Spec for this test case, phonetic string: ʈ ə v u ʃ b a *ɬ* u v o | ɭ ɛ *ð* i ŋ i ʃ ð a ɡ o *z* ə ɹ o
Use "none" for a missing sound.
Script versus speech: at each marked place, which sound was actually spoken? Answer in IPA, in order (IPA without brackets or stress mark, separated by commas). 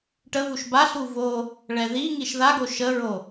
ɬ, ð, ʃ